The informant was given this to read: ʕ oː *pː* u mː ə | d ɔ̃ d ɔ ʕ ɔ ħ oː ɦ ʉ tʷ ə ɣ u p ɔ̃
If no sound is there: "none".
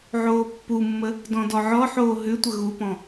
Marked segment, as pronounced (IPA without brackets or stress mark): pː